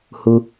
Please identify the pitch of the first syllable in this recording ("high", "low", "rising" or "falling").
low